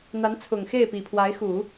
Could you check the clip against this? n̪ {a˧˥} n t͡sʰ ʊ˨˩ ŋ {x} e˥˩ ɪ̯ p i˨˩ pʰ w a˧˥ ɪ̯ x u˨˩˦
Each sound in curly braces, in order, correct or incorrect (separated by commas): correct, correct